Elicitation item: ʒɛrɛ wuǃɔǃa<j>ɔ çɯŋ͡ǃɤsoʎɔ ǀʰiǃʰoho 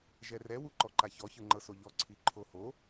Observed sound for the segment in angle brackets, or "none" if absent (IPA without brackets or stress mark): ç